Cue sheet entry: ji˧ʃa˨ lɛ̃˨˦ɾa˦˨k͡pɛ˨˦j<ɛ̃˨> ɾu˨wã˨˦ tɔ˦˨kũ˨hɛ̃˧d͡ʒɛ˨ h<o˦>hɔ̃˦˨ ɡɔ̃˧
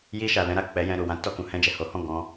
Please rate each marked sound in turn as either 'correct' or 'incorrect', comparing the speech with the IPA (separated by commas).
incorrect, incorrect